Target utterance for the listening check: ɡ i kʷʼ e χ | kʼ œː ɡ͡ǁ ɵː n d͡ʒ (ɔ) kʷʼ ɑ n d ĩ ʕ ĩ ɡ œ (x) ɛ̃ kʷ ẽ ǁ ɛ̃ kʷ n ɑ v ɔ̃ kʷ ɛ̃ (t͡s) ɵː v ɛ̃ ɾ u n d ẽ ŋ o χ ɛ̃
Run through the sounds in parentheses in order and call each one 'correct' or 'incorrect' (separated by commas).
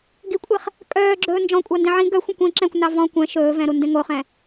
incorrect, incorrect, incorrect